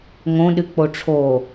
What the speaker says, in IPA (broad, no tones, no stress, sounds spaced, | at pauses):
ŋ õ ɗ ɨ k͡p o ʈ͡ʂʰ o